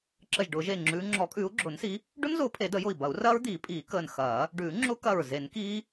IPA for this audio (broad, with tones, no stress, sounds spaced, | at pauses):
ǁ ə˧˩ ʒ ɖ ʊː˨˩˦ ʒ eː˧˩ ŋ͡ǁ ʉː˨˦ ŋ͡ǁ ɔ˨˩˦ kʼ ʉː˨˦ u̯ ɡ͡ǁ ʊː˨˩˦ n s i˨˦ | ɖ ʊ˦˥ n z ʊː˨˦ pʰ e˨˩˦ d ə˨˩˦ j ʊ˧˩ i̯ b ɐ˨˩˦ u̯ r ɐː˦˥ ɹ d̪ iː˨˩˦ pʼ iː˨˩˦ k əː˧˩ n x ɐː˨˩˦ | ɖ ʉː˨˩˦ ŋ͡ǁ ʊ˦˥ k ɐ˧˩ ɹ z e˨˩˦ n k iː˦˥